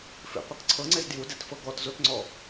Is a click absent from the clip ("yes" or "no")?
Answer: no